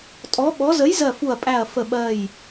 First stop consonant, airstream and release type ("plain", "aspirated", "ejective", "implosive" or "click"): ejective